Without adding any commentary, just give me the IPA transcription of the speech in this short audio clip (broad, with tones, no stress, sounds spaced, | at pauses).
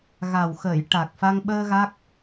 ɣ a˨˩ w x əː˨˩˨ j ʈ a˨˩ k̚ f a˧ ŋ ɓ əː˧ ɣ a˦˥ k̚